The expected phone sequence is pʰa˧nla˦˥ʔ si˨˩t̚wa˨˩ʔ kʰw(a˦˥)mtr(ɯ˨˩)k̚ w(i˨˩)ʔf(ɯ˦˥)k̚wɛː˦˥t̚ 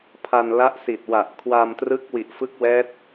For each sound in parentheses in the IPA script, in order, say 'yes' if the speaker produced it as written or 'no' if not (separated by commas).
no, no, yes, yes